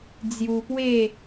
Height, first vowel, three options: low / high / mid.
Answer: high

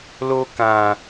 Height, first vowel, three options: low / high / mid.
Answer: mid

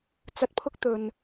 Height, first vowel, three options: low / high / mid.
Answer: low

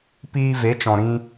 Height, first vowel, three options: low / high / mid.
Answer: high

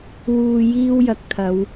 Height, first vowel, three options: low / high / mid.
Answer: high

